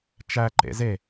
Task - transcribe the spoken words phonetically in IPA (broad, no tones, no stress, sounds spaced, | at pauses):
t͡ʃ æ ǃ ḛ z e